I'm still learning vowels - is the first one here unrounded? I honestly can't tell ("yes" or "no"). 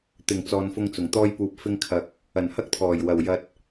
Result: yes